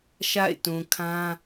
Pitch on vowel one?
falling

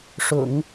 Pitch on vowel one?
low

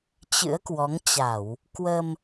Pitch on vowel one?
rising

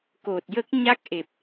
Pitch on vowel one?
low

